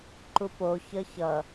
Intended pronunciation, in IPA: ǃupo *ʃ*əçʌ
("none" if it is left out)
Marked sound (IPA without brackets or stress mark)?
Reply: ç